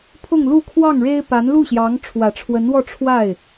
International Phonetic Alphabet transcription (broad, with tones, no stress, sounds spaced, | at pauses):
pʰ ʊ˥˧ ŋ l u˥˧ kʰ w ɑ˥˩ ŋ ɻ e˥ ɪ̯ p a˧˥ n l u˥˩ ɕ j ɑ˧˥ ŋ ʈ͡ʂʰ w ä˨˩ ʈ͡ʂʰ w ə˧˥ n w ɔ˥˧ ʈ͡ʂʰ w a˥˩ ɪ̯